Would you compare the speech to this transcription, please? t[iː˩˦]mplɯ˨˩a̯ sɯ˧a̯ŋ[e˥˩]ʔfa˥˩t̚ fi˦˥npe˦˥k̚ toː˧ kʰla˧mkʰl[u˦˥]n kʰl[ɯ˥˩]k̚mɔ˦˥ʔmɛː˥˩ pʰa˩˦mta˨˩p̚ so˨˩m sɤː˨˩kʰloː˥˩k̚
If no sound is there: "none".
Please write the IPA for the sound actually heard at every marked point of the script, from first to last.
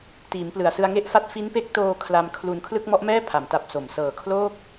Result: iː˩˦, e˥˩, u˧, ɯ˥˩

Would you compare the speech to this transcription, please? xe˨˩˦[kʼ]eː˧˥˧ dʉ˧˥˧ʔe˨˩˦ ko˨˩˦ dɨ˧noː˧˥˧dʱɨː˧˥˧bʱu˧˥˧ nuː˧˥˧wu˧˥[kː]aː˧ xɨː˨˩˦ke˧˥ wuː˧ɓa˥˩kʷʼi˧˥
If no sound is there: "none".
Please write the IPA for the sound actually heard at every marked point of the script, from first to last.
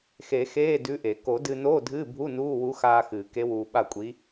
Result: x, x

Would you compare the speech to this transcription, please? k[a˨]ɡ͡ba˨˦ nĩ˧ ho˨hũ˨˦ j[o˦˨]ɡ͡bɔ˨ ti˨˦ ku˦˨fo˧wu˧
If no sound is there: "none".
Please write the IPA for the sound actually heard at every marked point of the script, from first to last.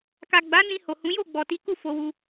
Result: a˨, o˦˨

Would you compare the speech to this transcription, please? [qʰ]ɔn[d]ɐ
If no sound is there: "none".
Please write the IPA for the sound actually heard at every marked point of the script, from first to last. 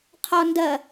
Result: qʰ, d

